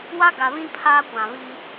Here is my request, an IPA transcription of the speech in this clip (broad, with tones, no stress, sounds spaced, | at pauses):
w a˦ ɡ a˨ β ĩ˦ pʰ aː˦ kʷ ã˨ β i˦